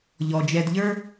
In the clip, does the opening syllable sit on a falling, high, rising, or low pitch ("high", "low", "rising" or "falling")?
low